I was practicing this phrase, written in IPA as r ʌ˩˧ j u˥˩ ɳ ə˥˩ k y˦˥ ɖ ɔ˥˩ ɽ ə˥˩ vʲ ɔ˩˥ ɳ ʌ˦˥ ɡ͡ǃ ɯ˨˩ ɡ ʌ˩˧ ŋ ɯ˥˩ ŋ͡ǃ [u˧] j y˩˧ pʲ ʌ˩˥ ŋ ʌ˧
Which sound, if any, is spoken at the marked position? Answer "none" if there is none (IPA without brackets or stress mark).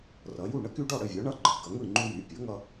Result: u˧